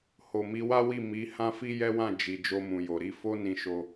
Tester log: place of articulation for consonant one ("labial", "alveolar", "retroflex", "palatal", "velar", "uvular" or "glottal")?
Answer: glottal